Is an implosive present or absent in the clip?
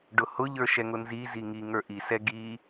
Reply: absent